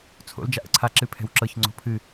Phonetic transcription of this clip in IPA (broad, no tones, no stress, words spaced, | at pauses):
t͡sʰo̰l d͡ʒaʔə̰ǀʰa ǁɨpʰɛ̤wǁɤç ŋ͡ǀo̤pʰɨ